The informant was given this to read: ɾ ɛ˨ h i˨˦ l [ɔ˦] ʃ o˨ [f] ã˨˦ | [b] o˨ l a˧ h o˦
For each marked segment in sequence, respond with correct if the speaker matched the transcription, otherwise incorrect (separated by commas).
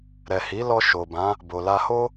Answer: incorrect, incorrect, correct